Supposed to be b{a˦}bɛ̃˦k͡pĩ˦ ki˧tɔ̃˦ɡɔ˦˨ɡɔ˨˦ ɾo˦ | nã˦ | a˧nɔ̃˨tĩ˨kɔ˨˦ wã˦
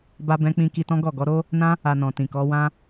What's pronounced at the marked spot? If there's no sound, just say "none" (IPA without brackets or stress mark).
a˦